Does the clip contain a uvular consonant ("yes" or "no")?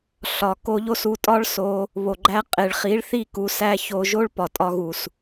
yes